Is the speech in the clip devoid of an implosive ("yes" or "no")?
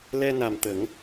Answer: yes